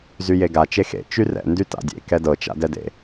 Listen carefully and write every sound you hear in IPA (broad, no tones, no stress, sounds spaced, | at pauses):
z y j e ɡ a t͡ʃ e x ḛ t͡ʃ y r ɛ̰ n d y t a̰ dʲ ḛ k ɛ d ɤ t͡ʃ a̰ d ɛ d ḛ